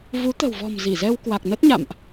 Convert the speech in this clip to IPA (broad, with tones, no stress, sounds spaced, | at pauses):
v u˨˦ t̪ ə̤˨˩ w v ɔ̤˨˩ m z i˧˩ z ɛ˧ w k w a˨˩ k̚ n ə˦˥ t̚ ɲ a̰˧˨ m ʔ